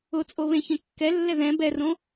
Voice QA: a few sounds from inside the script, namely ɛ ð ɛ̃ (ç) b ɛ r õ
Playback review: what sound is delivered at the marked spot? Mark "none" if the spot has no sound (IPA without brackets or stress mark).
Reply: none